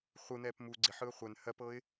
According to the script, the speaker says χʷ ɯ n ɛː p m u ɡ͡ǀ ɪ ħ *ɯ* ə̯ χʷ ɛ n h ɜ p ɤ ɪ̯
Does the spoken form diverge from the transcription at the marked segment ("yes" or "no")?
no